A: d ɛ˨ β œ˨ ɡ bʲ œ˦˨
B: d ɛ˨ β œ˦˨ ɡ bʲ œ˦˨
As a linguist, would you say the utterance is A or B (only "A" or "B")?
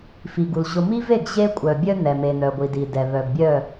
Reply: A